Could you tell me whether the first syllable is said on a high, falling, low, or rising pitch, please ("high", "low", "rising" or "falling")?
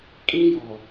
high